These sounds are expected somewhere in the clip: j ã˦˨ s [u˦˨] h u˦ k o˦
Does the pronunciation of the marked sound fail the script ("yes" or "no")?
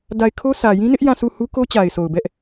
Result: no